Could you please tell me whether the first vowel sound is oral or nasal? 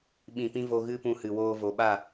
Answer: nasal